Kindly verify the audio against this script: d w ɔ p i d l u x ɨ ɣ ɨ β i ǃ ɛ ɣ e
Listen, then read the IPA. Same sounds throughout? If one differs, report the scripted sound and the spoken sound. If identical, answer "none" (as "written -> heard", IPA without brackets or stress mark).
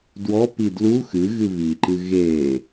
ɛ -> ɨ